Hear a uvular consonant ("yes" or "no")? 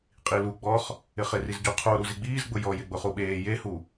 yes